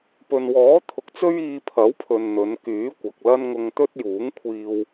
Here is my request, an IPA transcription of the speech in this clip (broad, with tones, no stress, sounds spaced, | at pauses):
p ɵ˨ n w ɔː˨˥ t̪ʰ ʊ˨˥ k̚ t͡s ɵ˥ ɥ iː˧ pʰ ɐ˨˥ w pʰ ɵ˨ n n̪ ɵ˨˧ n k yː˨˥ kʷ ɐ˨ k̚ l ɐ˥ n ŋ ʊ˧ ŋ t̪ ɵ˥ t̚ j uː˨˥ ŋ kʷʰ iː˧ w